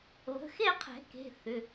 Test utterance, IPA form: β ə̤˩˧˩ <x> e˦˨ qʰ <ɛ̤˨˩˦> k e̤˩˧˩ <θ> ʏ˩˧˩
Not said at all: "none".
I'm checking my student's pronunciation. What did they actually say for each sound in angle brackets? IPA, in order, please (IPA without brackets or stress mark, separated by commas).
x, ɛ̤˨˩˦, θ